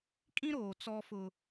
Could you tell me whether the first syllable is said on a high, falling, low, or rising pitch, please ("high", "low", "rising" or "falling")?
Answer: high